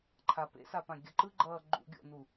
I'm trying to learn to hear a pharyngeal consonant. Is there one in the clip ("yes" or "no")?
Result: no